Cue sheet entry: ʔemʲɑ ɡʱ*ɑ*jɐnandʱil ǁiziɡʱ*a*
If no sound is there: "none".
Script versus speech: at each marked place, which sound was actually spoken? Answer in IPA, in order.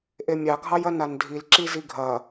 ɑ, ɐ

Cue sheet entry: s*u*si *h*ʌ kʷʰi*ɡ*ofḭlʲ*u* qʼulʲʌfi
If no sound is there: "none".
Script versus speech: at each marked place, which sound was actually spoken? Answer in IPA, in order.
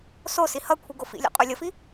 o, h, ɡ, ṵ

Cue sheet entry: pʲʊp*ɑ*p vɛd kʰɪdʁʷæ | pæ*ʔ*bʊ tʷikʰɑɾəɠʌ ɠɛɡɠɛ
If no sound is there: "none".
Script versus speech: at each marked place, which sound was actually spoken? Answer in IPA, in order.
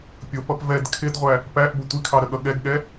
ʌ, ʔ

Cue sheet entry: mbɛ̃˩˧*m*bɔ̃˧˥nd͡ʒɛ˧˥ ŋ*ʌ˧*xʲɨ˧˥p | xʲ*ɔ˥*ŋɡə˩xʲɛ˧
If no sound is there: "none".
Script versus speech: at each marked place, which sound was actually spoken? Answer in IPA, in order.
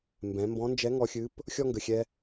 m, ɔ˧, ɔ˥

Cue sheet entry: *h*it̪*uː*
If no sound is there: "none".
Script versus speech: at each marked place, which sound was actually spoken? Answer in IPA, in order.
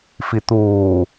f, uː

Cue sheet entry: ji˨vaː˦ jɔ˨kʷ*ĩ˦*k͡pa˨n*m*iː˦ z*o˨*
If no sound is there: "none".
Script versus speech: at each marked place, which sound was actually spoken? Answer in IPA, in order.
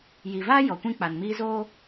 ĩ˦, m, o˦

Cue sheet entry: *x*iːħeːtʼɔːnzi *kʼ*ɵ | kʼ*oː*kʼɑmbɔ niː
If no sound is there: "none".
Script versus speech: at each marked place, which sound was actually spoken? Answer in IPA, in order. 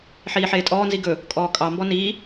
ħ, ɡ, ɔː

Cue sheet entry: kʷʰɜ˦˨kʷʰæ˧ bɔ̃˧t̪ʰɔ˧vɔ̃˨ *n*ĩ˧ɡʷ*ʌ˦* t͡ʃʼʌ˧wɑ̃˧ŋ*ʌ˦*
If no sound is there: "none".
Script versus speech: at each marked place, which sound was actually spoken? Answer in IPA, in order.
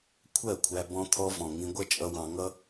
ŋ, ʌ˦, ʌ˦

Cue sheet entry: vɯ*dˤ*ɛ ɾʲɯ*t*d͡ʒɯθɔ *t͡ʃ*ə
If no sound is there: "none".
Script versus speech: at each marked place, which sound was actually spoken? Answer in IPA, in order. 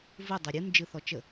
dˤ, n, t͡ʃ

